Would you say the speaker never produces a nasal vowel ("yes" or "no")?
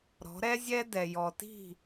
yes